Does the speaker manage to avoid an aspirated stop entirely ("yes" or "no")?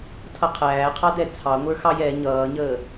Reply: no